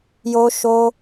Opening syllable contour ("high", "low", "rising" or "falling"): high